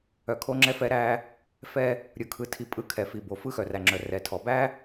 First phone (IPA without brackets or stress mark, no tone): œ